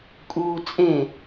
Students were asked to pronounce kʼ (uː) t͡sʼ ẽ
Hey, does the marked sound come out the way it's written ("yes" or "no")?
yes